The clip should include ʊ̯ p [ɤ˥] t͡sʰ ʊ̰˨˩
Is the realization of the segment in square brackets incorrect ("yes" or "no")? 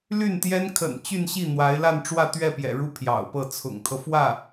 yes